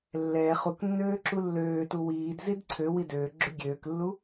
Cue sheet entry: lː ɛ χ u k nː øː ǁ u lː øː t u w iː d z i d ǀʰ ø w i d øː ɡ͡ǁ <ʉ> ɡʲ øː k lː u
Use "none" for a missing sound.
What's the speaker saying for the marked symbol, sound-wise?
ʉ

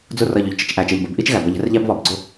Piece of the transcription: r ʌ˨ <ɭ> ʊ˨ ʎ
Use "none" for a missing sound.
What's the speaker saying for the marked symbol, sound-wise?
ʎ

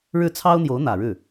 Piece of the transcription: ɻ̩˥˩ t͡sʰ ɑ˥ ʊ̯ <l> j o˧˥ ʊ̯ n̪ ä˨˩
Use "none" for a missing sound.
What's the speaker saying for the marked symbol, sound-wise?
n̪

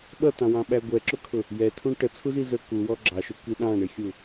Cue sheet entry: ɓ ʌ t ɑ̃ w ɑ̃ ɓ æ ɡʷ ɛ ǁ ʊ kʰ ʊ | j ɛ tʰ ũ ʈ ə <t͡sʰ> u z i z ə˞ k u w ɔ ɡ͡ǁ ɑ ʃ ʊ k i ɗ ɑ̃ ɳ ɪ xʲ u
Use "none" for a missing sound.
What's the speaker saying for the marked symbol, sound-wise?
t͡sʰ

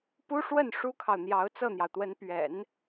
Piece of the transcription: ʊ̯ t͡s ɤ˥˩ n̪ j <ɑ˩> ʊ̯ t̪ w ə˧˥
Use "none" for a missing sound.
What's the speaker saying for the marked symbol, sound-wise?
ɑ˩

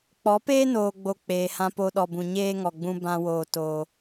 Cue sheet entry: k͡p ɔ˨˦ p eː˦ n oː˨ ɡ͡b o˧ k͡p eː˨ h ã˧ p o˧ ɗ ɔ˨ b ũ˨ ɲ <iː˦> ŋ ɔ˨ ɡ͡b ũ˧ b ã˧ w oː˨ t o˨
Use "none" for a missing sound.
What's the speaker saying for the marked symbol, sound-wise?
eː˦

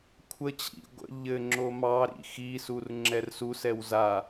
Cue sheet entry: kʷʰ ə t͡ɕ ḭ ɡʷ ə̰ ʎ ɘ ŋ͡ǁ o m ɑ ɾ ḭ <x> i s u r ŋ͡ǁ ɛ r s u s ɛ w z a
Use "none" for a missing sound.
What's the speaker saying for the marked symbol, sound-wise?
x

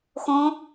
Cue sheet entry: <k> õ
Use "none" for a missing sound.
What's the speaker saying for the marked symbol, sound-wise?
x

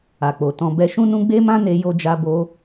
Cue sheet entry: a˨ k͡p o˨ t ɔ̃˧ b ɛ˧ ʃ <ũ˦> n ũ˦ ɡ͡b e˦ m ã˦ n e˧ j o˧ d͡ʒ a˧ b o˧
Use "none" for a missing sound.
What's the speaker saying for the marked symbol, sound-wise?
ũ˦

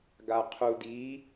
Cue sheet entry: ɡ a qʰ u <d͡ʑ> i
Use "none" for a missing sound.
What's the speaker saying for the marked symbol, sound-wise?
d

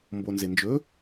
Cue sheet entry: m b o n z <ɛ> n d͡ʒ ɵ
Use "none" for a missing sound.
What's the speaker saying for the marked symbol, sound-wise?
e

